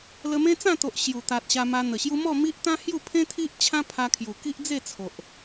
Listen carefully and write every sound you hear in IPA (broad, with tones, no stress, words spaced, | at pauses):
lə˧mẽ˦ t͡sã˥˧ t̪o˨ʔ ɕju˨˩t̪a˨t̚ ɕa˧ma˧n̪ə˨˩ɕju˦ mɔ˥˧mi˦ʔt̪ã˦ hju˥˧pʰẽ˦t̪ʰi˦ʔ t͡ɕʰã˦pʰa˧kʰju˨˩ ki˦ʔd͡ze˥˧t͡sʰo˨ʔ